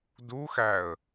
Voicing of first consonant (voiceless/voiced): voiced